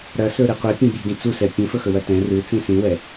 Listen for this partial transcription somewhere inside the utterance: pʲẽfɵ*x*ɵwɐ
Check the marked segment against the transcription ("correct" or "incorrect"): correct